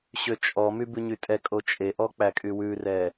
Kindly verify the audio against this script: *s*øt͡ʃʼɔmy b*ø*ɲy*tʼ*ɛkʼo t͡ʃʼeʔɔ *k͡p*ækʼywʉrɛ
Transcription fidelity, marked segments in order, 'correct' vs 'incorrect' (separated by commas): incorrect, incorrect, correct, correct